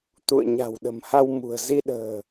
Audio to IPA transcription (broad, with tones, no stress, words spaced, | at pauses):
t̪ṵ˧˨ə̯ɲa̤˨˩wɗə̤˨˩mha˧w mṳ˨˩ə̯zi˧ ɗə̤ː˨˩